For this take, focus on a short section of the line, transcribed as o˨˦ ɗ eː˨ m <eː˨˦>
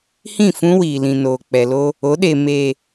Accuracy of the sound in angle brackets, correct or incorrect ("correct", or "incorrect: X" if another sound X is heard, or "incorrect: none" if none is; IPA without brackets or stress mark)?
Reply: incorrect: eː˨